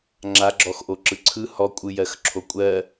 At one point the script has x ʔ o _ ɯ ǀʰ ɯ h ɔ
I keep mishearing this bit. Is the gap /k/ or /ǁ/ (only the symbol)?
ǁ